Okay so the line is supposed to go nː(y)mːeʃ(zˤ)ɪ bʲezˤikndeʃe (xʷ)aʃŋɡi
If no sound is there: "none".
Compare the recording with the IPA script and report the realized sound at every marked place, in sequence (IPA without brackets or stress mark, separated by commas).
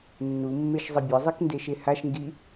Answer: u, zˤ, h